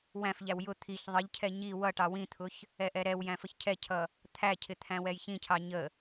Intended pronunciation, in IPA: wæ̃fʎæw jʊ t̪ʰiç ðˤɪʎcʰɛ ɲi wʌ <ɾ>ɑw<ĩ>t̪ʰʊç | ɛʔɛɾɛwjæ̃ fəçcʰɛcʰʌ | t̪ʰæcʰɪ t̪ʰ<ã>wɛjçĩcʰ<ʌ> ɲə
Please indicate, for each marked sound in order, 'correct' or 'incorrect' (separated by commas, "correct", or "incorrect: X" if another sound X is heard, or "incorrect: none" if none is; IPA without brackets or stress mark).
incorrect: ʈ, correct, incorrect: æ̃, incorrect: ɑ